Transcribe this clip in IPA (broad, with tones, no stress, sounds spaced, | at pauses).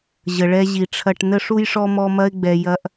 ʑ ə˨ ɭ ɛ˦ ʑ i˨ ʈ͡ʂʰ ɐ˦ ʈ n ə˦ ʂ u˦ j ʂ ɔ˦ m ɔ˦ m ɐ˦ ɪ̯ ɡ͡b ɛ˨ j ɐ˨ ʔ